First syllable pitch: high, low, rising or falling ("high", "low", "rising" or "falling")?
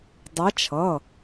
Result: rising